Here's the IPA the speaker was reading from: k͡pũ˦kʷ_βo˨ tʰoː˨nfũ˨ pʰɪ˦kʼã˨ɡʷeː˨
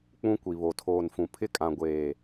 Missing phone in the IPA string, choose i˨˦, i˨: i˨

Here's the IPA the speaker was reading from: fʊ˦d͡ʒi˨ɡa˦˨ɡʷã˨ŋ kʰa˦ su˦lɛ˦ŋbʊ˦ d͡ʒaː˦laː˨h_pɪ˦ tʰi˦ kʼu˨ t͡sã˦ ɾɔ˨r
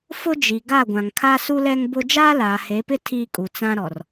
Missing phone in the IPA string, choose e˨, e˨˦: e˨˦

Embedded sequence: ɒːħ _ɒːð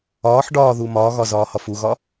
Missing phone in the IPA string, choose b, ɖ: ɖ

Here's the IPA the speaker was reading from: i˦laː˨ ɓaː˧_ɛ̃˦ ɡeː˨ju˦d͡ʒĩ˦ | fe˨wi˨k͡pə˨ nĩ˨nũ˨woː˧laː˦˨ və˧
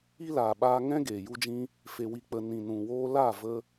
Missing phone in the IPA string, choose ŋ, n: ŋ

